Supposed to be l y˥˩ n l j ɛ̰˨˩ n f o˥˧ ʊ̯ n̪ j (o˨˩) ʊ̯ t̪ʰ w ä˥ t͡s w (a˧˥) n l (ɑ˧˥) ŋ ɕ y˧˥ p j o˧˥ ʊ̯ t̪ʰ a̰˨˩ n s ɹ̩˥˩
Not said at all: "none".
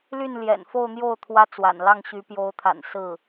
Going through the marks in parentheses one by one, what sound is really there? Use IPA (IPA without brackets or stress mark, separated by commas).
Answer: o˥˩, a̰˨˩, ɑ˥˩